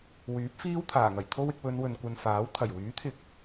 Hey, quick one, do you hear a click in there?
no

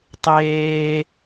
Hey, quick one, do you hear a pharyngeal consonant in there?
no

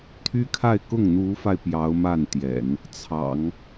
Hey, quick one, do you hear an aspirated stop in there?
yes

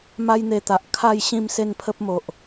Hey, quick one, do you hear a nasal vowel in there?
yes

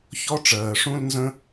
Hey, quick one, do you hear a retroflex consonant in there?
yes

